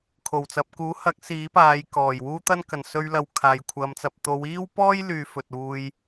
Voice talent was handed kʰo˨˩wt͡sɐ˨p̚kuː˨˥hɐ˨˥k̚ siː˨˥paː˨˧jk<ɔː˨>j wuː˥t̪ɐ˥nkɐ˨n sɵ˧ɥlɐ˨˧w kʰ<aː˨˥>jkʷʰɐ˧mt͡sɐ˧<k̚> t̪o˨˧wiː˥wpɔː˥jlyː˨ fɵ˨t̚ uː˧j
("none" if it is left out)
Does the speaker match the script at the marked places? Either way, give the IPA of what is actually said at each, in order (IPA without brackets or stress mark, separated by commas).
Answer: ɔː˨˩, aː˨, p̚